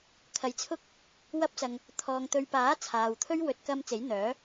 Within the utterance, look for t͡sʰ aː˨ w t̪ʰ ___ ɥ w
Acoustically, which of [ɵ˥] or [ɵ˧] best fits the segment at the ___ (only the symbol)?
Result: ɵ˥